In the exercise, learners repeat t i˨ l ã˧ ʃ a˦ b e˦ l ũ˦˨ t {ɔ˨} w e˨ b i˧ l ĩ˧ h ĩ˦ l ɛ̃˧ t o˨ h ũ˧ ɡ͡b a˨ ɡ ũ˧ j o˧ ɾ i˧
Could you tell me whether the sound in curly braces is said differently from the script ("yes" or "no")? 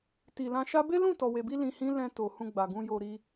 no